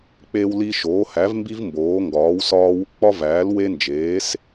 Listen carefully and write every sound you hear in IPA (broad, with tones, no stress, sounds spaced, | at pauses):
k͡p e˦ w l i˦ ʃ oː˩˥ h æ˩˥ v m b i˦ v m b oː˩˥ ŋ ɡ ɒː˩˥ w s ɒː˦ w ṵ˦ k͡p ɒ˦ v æː˩˥ l w e˦ n d͡ʒ eː˩˥ s